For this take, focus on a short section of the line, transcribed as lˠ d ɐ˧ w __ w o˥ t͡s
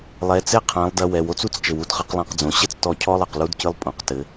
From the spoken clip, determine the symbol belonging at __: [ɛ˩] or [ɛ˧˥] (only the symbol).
ɛ˩